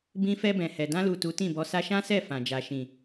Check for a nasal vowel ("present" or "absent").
present